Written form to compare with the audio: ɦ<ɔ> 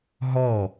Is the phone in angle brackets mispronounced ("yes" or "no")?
no